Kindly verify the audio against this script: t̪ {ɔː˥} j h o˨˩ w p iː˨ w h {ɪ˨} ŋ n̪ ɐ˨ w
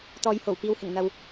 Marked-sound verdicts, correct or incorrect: incorrect, incorrect

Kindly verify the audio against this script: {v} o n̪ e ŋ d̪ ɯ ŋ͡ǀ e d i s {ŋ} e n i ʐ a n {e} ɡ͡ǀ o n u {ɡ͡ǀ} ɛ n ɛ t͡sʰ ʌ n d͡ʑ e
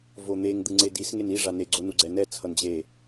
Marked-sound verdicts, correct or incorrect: correct, correct, correct, correct

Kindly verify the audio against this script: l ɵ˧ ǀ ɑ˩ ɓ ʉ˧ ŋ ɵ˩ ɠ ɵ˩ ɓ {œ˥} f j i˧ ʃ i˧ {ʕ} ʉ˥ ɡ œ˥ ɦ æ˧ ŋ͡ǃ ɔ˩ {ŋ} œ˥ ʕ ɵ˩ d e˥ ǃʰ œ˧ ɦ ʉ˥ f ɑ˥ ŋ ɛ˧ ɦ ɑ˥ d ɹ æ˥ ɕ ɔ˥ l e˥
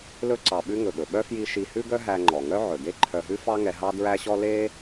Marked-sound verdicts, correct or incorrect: correct, incorrect, correct

